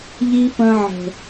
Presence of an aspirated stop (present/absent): absent